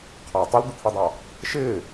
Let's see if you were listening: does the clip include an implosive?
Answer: no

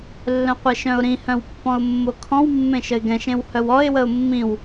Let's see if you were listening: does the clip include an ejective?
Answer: no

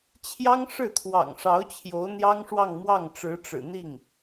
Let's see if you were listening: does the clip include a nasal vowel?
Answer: no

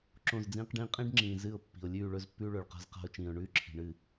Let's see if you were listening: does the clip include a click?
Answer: yes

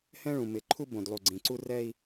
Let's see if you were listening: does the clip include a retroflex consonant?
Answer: yes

